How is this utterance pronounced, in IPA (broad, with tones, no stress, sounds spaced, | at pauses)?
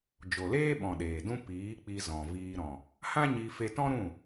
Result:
d͡ʒ o˨ l eː˦ ɓ ɔ̃˨ ɗ eː˨ d ũ˦ p iː˨˦ k͡p i˧ z ɔ̃˨ v iː˧ ɾ ɔ̃˨ | h ã˦ ɲ i˧ f e˧ t ɔ̃˦ ɾ ũ˦˨